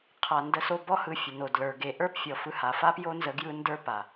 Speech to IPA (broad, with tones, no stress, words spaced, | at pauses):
qʰa˨ndə˨˦so˧bɔ˦ hɯ˧fʲə˨no˨dlə˞˨ ɡe˨ʔə˞˦pfʲɔ˨ fɯ˧ha˨ fa˦pjo˦nzə˧ ɡjɯ˦ndə˞˦pa˨